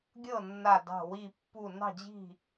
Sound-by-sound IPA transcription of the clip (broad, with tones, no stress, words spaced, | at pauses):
ɡʲɤ˥˨nːa˧˩ dɑ̤˧˩wi˧˩pːu˧˩ nɑ̤˥˨d͡ʑi̤˥˨